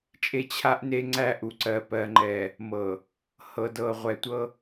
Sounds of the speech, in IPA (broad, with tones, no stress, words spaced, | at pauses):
t͡ʃʼe˦t͡ɕʰa˦ʔne˦ŋ͡ǀæ˦ ʔu˨ǀɜ˨ pɜ˨ŋ͡ǃɛ˨ | mɤ˨ | hɤ˨dɤ˨ʁʷɛ˨tʷɤ˦